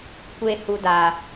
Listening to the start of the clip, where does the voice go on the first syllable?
high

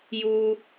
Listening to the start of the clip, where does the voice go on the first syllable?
high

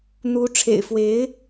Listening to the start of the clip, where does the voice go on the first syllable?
rising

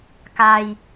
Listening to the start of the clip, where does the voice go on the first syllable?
low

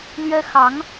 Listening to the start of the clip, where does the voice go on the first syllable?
high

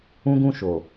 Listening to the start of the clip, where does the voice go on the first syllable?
high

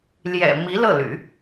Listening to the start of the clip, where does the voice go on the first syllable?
low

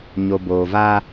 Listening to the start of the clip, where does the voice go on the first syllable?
low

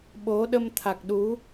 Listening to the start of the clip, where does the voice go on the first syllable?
rising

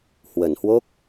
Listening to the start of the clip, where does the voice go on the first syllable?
low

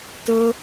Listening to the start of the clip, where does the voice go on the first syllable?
high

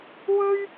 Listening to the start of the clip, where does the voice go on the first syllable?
high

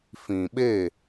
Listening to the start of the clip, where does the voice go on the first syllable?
low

